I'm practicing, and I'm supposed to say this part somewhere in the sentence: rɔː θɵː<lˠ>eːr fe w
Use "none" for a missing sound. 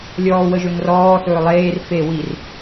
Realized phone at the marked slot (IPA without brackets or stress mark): lˠ